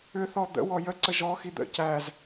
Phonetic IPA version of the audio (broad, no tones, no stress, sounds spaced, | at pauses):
ʏ θ ɔ d̪ ə̰ w ɔ j ə ǀ ə ʒ ɔ x i d̪ ə̰ c æ z